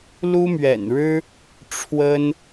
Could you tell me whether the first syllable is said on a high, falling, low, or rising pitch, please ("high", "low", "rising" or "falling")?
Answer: high